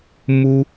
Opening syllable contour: high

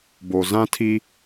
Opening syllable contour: low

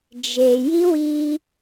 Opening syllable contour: low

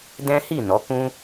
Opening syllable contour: high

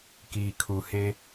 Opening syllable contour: low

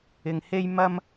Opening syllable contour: low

